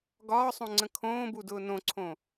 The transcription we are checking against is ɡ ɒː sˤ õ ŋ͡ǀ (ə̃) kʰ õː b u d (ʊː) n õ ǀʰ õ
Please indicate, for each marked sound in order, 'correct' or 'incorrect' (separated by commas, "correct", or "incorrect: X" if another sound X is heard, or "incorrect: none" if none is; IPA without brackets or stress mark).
correct, correct